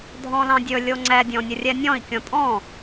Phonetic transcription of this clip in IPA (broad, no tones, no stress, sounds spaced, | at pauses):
dʱ ɔ̃ l ɑ̃ dʲ ɵ lʲ o ŋ͡ǀ ɛ dʲ ɔ̃ nʲ ə rʲ ɛ nʲ ɔ̃ i̯ kʲ ɔ̃ tʼ ɔ̃